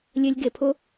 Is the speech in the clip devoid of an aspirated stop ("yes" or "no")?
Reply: no